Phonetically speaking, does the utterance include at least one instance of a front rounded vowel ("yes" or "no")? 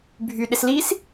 yes